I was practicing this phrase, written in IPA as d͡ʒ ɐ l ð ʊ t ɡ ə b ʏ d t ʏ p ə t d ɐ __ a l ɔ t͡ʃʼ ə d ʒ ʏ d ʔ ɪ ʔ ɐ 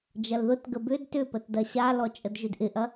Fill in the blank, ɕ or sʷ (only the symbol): ɕ